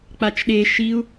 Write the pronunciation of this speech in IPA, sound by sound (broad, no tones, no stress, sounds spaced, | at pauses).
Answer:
k͡p a t͡ʃ ɗ e ʃ i u̯